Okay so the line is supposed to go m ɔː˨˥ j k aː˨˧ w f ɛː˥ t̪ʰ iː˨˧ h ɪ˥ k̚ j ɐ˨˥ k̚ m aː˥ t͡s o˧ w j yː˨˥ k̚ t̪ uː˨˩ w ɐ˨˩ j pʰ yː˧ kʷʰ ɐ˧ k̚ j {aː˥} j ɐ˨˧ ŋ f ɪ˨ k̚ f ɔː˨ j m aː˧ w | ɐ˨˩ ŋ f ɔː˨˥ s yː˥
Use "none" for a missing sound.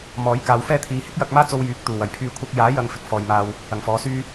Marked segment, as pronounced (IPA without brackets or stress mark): aː˨˥